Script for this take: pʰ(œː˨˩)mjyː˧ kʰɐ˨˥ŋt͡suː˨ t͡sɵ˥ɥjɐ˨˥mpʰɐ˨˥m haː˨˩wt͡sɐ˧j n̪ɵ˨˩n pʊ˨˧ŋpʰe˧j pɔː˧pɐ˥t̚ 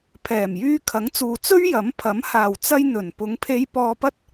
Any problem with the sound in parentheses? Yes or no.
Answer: yes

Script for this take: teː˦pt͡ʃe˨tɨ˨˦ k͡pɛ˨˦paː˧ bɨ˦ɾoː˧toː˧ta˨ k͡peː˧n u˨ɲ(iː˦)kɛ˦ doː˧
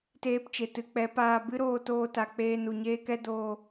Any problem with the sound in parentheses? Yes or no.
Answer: yes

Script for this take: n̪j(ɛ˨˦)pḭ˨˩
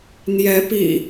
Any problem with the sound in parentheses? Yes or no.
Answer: no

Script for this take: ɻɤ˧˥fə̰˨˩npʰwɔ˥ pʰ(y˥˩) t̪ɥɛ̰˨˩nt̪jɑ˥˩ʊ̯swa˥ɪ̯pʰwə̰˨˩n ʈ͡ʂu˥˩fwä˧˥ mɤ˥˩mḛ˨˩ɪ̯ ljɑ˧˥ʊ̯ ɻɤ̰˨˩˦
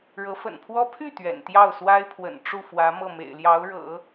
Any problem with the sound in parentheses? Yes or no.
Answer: no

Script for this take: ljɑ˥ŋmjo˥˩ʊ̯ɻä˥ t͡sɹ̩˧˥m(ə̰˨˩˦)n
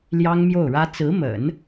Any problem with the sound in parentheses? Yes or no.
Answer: no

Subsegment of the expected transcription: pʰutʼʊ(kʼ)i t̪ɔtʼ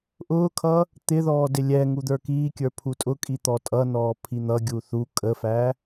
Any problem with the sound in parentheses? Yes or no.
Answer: no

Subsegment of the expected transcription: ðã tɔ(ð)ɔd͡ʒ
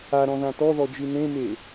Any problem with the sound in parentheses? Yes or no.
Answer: no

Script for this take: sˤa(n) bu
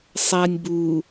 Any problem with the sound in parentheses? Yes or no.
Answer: yes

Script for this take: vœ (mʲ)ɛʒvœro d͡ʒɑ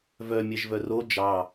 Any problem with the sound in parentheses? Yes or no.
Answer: no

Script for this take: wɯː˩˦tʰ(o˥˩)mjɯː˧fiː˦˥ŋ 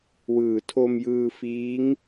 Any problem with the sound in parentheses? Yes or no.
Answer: yes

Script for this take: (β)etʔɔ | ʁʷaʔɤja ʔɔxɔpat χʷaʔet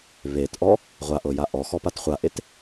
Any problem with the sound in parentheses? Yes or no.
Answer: no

